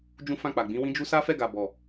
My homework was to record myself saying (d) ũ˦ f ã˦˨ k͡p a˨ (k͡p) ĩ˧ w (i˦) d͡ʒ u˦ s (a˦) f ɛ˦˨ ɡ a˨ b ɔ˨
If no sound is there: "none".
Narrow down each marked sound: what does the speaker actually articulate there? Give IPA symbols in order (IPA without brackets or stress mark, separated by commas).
d͡ʒ, ɡ͡b, ĩ˦, a˦